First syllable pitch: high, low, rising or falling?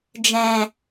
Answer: low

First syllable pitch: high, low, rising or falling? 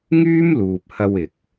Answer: high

